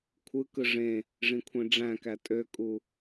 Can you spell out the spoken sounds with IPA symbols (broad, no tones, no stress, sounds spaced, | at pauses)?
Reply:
kʷʰ ɯ k ɯ ʐ ẽ | ʐ ĩ kʷʰ ẽ ɖ͡ʐ æ̃ k æ tʼ ø kʼ u